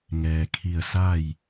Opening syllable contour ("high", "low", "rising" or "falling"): low